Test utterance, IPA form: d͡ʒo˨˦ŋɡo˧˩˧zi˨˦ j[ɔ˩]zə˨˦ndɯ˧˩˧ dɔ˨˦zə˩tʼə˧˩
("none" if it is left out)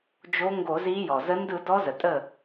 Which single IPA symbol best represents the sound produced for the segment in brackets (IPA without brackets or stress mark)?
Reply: ɔ˩